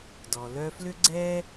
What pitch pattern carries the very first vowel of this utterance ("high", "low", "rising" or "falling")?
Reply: low